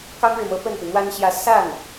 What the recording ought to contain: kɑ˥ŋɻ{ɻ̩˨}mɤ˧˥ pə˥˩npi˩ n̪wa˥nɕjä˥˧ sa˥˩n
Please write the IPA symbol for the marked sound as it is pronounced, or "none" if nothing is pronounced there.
ɻ̩˨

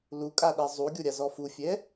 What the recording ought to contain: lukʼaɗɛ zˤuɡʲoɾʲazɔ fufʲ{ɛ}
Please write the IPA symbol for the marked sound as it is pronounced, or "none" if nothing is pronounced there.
ɛ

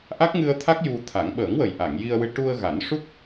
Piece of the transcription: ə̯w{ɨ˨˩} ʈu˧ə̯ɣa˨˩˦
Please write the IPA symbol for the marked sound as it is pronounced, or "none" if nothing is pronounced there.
ɨ˧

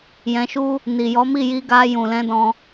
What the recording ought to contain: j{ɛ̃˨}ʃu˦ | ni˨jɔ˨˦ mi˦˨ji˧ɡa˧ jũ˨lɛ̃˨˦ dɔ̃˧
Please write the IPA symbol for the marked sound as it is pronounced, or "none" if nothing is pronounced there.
ɛ̃˧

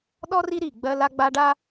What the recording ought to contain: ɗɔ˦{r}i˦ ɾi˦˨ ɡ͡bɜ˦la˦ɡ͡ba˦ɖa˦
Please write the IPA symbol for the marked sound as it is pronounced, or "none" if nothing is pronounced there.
r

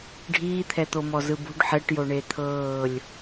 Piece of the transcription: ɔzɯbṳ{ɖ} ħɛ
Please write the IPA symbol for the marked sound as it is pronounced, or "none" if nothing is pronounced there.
ɖ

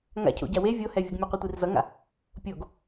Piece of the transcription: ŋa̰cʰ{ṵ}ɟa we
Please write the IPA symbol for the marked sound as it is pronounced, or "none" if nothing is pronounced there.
o̰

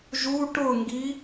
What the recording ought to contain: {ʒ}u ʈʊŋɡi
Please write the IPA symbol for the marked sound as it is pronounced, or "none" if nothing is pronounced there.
ʒ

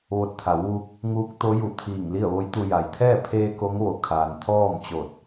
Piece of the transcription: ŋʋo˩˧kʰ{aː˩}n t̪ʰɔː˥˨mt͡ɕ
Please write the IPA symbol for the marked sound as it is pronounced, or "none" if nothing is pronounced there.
aː˩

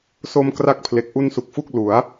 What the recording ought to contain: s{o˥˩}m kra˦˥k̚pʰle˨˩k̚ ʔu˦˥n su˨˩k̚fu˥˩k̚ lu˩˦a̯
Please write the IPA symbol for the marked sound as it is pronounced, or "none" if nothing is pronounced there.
o˧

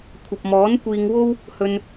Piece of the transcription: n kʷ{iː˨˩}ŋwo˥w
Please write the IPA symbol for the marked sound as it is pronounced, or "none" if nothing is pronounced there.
iː˧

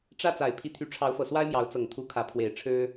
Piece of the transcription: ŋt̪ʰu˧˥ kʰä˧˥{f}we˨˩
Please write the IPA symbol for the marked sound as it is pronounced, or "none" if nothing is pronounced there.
pʰ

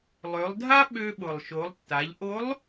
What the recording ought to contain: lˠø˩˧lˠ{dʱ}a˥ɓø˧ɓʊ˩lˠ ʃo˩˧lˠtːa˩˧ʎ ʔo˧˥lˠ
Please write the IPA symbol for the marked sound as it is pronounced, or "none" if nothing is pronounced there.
dʱ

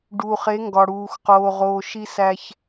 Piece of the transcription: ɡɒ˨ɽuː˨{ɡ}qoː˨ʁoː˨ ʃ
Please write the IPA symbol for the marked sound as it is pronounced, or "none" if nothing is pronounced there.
x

